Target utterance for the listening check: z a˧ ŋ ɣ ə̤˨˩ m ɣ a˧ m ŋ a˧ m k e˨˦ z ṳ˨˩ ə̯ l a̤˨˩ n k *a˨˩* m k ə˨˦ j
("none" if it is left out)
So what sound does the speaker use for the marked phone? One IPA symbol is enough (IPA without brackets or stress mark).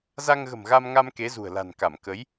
a˧˩